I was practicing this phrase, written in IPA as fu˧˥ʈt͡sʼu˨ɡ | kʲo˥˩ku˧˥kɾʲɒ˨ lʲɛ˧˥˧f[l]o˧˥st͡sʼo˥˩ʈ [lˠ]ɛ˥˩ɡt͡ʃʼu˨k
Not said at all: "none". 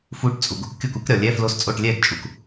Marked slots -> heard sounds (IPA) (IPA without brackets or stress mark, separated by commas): l, lʲ